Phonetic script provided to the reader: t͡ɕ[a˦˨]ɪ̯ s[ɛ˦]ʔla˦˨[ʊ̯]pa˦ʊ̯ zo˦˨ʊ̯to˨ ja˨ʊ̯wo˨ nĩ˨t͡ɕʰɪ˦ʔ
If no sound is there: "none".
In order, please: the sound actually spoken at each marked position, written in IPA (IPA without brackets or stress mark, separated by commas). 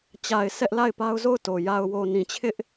a˨, ɛ˦, ɪ̯